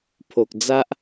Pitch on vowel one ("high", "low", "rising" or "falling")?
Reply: low